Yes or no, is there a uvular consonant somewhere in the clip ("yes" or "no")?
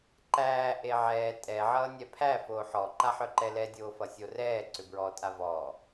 no